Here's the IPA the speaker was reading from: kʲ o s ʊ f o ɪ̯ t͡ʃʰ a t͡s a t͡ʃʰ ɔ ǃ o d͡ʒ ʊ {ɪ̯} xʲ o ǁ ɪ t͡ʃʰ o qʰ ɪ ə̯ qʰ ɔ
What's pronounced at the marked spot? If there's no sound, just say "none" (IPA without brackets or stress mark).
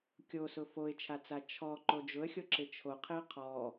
ə̯